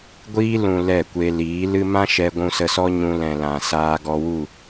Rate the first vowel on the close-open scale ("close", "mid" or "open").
close